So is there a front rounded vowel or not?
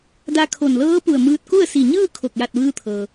no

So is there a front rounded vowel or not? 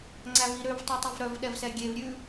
yes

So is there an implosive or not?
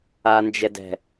no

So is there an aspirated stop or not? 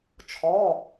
yes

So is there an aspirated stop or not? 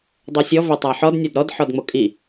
no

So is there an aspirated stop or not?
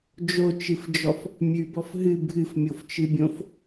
no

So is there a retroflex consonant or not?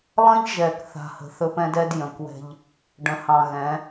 yes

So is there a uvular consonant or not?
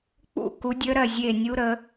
no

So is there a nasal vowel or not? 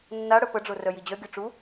no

